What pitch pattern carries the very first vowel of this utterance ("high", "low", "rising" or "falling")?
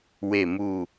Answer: low